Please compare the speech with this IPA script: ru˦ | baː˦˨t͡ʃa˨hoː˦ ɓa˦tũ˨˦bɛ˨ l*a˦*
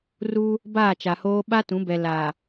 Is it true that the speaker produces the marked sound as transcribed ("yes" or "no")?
no